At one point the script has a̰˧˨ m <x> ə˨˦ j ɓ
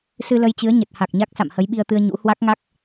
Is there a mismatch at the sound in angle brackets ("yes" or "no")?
yes